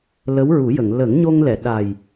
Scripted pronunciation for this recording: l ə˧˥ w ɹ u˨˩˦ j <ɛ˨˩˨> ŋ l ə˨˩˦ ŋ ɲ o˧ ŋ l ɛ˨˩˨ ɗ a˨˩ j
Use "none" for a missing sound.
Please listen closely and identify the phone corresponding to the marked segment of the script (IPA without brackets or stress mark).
ə˨˩˨